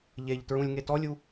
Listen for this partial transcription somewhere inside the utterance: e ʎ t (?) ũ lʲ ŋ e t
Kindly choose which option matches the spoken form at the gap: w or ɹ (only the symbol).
ɹ